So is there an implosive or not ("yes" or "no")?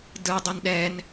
yes